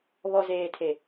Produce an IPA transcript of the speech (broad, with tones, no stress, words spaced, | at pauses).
βɔ˨zeː˨tʰe˨